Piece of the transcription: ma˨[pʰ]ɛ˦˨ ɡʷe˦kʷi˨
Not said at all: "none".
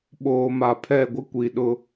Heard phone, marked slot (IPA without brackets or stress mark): pʰ